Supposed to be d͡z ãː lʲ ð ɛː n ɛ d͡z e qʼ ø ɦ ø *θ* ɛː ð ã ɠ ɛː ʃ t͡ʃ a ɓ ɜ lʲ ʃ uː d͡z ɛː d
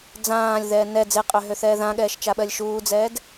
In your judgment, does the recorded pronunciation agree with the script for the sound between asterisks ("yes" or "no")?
yes